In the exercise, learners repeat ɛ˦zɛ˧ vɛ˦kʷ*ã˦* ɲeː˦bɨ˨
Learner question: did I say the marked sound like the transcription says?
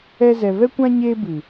yes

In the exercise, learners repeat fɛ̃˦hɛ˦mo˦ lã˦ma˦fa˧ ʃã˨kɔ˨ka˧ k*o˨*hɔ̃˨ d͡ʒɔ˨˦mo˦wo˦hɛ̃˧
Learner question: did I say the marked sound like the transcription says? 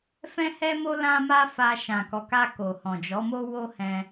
yes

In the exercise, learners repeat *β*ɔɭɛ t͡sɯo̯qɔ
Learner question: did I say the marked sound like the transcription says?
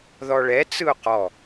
no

